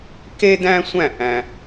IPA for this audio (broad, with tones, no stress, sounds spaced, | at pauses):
k e˥ d æ̃˥ sʷ æ̃˥˧ ʔ æ̃˥